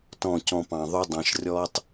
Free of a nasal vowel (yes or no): no